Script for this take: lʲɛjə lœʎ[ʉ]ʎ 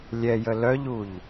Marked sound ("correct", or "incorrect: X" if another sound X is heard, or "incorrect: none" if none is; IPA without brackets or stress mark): incorrect: u